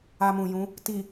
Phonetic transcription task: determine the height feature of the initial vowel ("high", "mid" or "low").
low